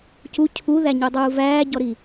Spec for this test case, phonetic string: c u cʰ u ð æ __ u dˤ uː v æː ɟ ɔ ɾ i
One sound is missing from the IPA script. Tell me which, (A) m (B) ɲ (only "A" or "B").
B